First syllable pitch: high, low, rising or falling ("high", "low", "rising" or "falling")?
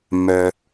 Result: low